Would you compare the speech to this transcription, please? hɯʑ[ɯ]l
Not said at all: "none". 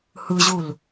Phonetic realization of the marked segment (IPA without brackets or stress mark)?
u